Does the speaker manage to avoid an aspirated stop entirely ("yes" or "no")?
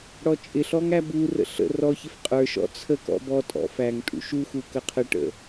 no